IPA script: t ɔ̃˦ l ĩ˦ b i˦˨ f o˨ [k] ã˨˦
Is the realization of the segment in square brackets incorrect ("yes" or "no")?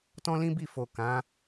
no